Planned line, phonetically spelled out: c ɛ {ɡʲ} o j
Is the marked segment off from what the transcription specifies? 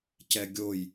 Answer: no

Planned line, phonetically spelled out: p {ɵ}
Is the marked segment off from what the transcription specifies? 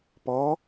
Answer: yes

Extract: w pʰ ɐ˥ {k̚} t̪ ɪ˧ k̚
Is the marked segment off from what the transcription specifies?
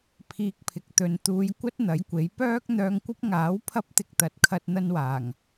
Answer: yes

